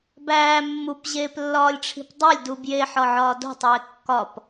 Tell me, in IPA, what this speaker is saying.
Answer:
b æː mː u p ʑ eː p lː ɒː lʲ ʈ͡ʂʰ i̤ p dˤ æ lʲ d u b j e ħ ɒ ʕ ɒː d o̤ tˤ eː kː ɒ p

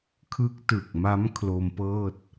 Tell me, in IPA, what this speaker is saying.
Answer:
kʰ ɯ˦˥ k̚ t ɯ˨˩ k̚ m a˦˥ m kʰ l o˧ m p ɤː˥˩ t̚

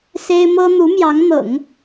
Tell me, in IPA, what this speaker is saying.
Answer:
s e˥ ɪ̯ m ɤ˥ n̪ u˧˥ m j ɑ˧˥ ŋ n̪ ɤ̰˨˩˦ ŋ

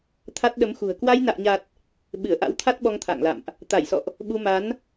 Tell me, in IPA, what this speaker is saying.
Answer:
t̪ʰ a˦˥ t̚ ɗ ə˨˦ m x ṳ˨˩ ə̯ k w a˧ j n a̰ː˧˨ ɲ a˨˩ t̚ | ɓ ɨ˧˩ ə̯ ʔ a̰˧˥ w t̪ʰ a˦˥ t̚ ɓ ɔ˧ ŋ t̪ʰ a̰ː˧˨ ŋ l a̰˧˨ m ʔ | t̪ a˧˩ j s ɔ̰˧˨ ʔ | ɓ u˧ m a˨˦ n

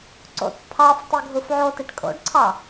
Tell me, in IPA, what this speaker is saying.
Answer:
ǀ o̰ t pʰ ɑ f tˤ e ɡʱ u f ʕ o t i ʈ kʼ o̰ ɖ ǀʰ ɑ

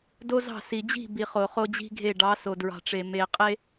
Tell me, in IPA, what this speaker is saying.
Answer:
d o˦ z ɑ̤˦˨ s i˨ d͡ʑ i̤˦˨ b i˨ χ o˨ χ o˦ d͡ʑ i̤˦ ɡʱ e˦˨ ɖ ɑ˨˦ s o˨ d ɹ ɑ̤˨ ʈ͡ʂ e˨ m e˨ qʼ e˦

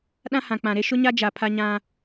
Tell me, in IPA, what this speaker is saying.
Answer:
ɗ ã˦ h ã˨ k͡p ã˨ ɾ e˦ ʃ ʊ˦ ɲ a˦ d͡ʒ a˨ pʰ a˦ ɲ ã˦

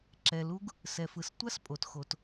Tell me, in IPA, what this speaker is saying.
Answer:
ǁ ɛ˩ l u˥ ɡ | s ɛ˩ f ɯ˩ s tʷ a˥ s pʼ o˩ t x o˩ t

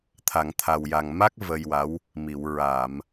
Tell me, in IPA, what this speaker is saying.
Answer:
t̪ʰ a˨˩˨ ŋ t̪ʰ a˨˩ w j a˨˩ ŋ m a˦˥ k̚ v ə˧ j w a˧˥ w | m i˨˩˨ w ɹ a˨˩˨ m

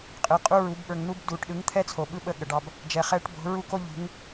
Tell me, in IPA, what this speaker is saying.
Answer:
qʼ ɯ˨ qʼ u˦ ɹ u˨˦ b ɓ ə˞˨ ŋ n̪ u˦ b d uː˨ ʈ ɗ ɯ˨˦ ŋ t̪ʰ ɛ˦ t͡sʰ o˨ ɓ ɯ˦ ɓ ə˦˨ ɠ ə˨ ɖ ɑ˦ b | d͡ʒ ɛ˨ χ ɛː˦ ʈ b o̤˨˦ ɹ u˦ k o˦ ʎ ṳ˨˦ ŋ

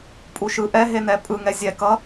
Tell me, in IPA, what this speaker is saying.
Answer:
pʼ u ʃ ɯ ʔ ɛ ɦ e n ɛ pʼ ɯ ŋ ɛ zʲ ɛ k ʌ

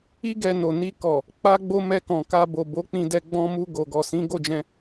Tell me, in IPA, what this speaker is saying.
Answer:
i˦ ɡ ɛ˧ n o˨ n i˧ k ɔ˨ | k͡p a˦ ɡ͡b o˦ m ɛ˧ k ɔ̃˨ k a˧ b o˨ b o˨˦ k͡p ĩ˧ d ɛ˧ ɡ͡b ɔ̃˧ m u˧ ɡ o˨ ɡ ɔ˨ s ĩ˨˦ ɡ o˦˨ d͡ʒ ɛ̃˧

